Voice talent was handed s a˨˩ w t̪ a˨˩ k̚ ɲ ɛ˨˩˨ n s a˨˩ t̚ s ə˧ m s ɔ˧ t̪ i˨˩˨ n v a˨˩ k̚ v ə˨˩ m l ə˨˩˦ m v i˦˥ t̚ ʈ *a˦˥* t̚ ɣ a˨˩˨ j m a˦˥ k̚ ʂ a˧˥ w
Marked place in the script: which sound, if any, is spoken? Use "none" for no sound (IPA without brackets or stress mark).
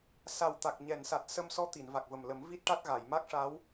a˦˥